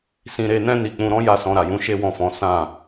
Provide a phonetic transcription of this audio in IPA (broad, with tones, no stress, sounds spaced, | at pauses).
s ĩ˧ ɾ e˧ n ɛ̃˦ n i˧ k͡p ũ˧ ɾ ɔ̃˦ j a˦˨ s ɔ̃˧ ɾ a˨ j ũ˨˦ ʃ e˦ w ɔ̃˦˨ f ɔ̃˨˦ s ã˦˨